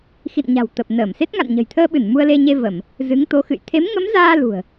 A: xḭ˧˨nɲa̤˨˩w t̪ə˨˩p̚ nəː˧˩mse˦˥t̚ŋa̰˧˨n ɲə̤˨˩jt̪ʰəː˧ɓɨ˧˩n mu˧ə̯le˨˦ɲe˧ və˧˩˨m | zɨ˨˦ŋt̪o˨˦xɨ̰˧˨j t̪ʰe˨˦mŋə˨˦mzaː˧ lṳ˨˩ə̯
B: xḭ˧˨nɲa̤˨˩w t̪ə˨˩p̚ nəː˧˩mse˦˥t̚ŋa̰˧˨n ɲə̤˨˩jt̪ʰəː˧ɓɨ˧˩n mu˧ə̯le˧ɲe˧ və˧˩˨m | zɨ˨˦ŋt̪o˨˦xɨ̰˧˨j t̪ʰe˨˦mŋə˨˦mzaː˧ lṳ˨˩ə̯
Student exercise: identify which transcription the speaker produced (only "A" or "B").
B